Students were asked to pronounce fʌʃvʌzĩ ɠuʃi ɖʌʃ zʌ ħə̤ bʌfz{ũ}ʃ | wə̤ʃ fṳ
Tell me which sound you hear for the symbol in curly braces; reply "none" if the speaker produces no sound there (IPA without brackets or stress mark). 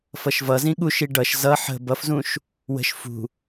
ũ